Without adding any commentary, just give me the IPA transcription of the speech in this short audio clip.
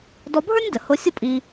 dɔ˧bʱə˞˥nʲ də˩hʊ˧sʲʊ˥ pʼi˧

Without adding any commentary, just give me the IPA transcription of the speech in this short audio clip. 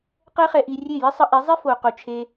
qɛ˦χɛ˧ ʔi˧rʲe˦˨ jɪ˦sˤə˧ ʔe˨˦zˤi˦fo˨qo˨ t͡ʃʰe˧

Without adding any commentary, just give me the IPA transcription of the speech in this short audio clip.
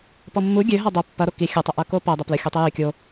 pɔmːu ɡʲøɦa dˤo pːɐɾo ki xʲɐtˤəʔɐ kopɐ dˤəplə xʲotˤijø kʲo

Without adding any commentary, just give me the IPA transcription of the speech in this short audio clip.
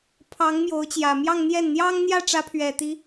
pʰɑ˧˥ŋ mjo˧˥ʊ̯t͡ɕjä˨˩ mjɑ˥˧ŋ n̪jɛ˥˩n n̪jɑ˥ŋ n̪jä˥˩ʈ͡ʂä˧˥pʰɥɛ˨˩t̪i˧˥

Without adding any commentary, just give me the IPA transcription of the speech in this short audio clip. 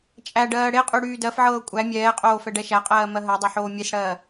t͡ʃʼæɖɜː ɽeqʼy ɽyːdɜfʕɤː kʷʼæ mʲɛːqʼoː fɛɖɛʃæqʼɜː mɜɦɜdˤo ħoːmʲesɽɜː

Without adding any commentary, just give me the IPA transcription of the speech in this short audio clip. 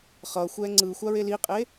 χʌxʷɛ ŋ͡ǀɯ xʷaɹeliqʼe

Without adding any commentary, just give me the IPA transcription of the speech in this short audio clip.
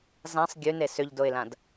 zãsˤ ɡʲʉne sʏʎdoɪ̯lãd

